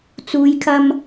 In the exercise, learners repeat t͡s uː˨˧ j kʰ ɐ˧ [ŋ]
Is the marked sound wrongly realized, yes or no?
yes